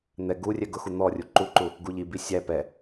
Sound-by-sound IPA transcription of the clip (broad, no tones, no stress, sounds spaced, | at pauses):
n̪ ɛ ɡ u rʲ ɛ ɡ ʊ x u n̪ ɔ rʲ u ǃ u ǃ u | ɡ u ʎ i b i sʲ æ p ɛ